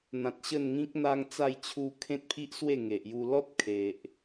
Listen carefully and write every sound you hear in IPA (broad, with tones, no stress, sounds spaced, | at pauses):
n̪ ã˨ t̚ ɕ ə˥˧ n ŋ ĩ˦ k̚ n̪ a˦ ŋ t͡s a˧ j t͡ɕʰ u˧ kʰ ẽ˦ t̚ pʰ i˦ ʔ s w e˥˧ ŋ e˨ ʔ j u˧ l ɔ˦ t̚ kʰ e˨ ʔ